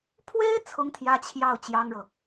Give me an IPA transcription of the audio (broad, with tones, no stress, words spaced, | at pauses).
pʰwe˥ɪ̯ t͡sʰʊ˥ŋt̪ʰjä˥ t͡ɕʰjɑ˥˩ʊ̯ t͡ɕjɑ˥ŋɻɤ˨